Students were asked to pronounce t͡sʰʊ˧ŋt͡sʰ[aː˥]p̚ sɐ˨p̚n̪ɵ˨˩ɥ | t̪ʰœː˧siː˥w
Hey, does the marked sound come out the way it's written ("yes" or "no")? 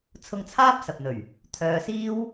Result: yes